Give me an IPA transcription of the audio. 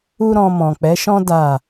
u˦ɾɔ̃˧ mɔ̃˨k͡pɛ˨˦ʃɔ̃˦ da˦˨

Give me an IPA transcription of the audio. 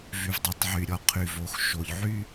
vy˨vdˤo˨˦tˤʕy˨ɾʲɔ˨ qʰy˨vo˨˦x ʃo˨ʎʕy˦

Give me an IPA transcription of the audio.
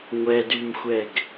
ŋʷɛdymxʷɛɡ

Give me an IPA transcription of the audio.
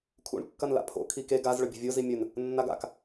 kʰṵɳ kːɐnla̰pʰo̰ kʰike ɡaz ɭɵbʲo̤vʲo zimʲɵn | nːaɡa̰k

